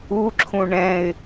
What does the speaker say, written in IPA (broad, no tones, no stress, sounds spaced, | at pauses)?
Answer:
u ǁʰ ũ ɳ ɛ̃ ɪ̯